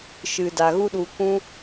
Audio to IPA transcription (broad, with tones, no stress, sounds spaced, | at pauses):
ʃ ɨ˨ d a˨ ɣ u˦ ɗ u˧ kʷ ũ˦